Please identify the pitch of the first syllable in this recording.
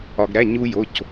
low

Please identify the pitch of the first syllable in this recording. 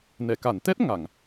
low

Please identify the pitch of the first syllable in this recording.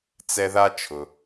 high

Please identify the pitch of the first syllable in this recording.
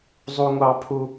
high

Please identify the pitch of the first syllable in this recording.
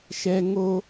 high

